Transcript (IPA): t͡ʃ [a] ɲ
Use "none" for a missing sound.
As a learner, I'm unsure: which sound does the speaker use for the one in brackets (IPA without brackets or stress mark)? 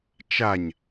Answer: a